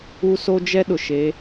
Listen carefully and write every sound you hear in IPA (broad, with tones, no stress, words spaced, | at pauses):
u˦ so˦d͡ʒɛ˦ ɗʊ˨ʃe˨˦